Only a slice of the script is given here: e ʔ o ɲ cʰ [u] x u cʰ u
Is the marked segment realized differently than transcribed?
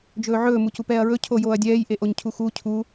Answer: no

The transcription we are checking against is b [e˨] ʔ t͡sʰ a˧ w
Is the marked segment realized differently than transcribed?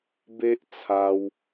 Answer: yes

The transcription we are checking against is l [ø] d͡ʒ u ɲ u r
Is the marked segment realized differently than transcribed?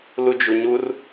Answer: yes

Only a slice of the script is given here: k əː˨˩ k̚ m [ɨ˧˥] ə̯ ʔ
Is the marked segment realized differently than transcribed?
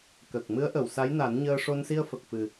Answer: no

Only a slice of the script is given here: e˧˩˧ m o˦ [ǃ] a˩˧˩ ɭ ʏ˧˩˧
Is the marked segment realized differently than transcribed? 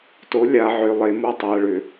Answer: yes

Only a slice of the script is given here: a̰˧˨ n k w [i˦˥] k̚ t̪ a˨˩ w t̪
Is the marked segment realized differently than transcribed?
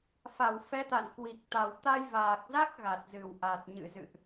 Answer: yes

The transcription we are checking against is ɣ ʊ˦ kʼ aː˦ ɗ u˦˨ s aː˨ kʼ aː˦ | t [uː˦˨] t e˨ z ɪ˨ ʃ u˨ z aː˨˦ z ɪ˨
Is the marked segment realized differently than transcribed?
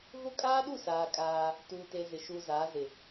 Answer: yes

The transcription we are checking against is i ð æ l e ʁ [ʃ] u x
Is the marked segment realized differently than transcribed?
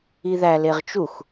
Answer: yes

